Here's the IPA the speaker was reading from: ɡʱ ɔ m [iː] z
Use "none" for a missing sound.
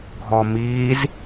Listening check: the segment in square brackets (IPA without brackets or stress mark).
iː